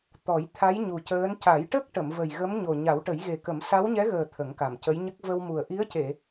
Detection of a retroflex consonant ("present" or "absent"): present